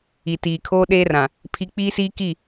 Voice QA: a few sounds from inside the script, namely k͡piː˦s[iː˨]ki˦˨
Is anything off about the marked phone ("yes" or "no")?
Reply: yes